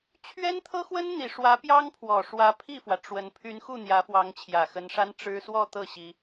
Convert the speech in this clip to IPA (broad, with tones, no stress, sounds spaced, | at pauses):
t͡ɕʰ ɥ ɛ˥ n t̪ʰ ɤ˥ x w ə˥ n n̪ i˨˩ ʂ w ä˧˥ p j ɑ˥ ŋ pʰ w ɔ˨˩ ʂ w ä˧˥ pʰ i˥˩ f w ä˩ ʈ͡ʂ w ə˧˥ n pʰ y˧˥ n x u˥˩ n̪ j ä˧˥ f w ɑ˧˥ ŋ t͡ɕʰ j ä˨˩ x ə˧˥ n ʂ a˥ n ʈ͡ʂ ɻ̩˥ s w ɔ˥˧ t̪ ɤ˥˩ ɕ i˥